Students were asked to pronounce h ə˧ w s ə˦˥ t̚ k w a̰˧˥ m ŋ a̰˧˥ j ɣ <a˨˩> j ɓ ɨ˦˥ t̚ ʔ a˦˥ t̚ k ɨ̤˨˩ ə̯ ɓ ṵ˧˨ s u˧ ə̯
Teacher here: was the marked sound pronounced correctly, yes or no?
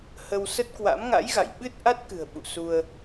no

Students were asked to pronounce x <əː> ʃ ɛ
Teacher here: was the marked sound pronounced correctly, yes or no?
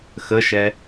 no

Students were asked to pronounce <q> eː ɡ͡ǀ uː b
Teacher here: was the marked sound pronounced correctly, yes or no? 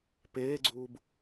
no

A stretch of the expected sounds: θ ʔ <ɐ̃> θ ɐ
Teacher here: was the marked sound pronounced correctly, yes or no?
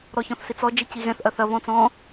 no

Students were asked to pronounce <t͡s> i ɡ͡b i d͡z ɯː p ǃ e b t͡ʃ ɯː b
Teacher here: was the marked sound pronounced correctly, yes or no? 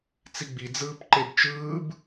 yes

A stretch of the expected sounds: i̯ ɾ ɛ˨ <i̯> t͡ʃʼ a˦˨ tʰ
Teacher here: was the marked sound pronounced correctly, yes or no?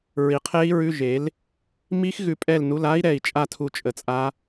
yes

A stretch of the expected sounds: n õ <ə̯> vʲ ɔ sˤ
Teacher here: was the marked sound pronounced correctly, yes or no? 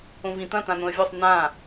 yes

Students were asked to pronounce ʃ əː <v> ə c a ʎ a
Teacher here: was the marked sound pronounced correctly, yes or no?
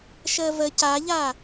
yes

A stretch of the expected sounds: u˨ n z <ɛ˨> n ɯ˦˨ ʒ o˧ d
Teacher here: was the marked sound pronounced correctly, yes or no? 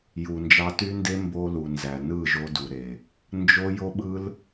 no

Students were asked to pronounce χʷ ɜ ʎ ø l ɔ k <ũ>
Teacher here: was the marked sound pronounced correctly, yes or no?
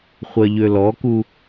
no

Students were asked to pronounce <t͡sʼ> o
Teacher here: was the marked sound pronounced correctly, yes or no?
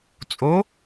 yes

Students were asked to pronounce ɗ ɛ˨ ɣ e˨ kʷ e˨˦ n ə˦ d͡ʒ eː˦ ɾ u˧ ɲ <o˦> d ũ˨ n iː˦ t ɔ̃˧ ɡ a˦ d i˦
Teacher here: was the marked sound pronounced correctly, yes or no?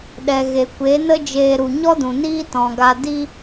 no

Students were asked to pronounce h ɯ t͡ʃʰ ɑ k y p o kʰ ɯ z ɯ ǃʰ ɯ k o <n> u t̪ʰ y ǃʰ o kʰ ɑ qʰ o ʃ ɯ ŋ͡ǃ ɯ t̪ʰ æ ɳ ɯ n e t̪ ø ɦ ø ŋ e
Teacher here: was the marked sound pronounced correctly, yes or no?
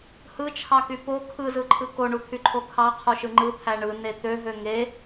no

